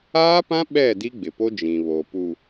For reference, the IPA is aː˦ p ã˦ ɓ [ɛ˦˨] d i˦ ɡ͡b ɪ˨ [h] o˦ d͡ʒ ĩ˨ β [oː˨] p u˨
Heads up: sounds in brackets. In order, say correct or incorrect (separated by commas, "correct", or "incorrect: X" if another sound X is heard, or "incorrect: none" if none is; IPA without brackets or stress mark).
correct, incorrect: p, incorrect: o˨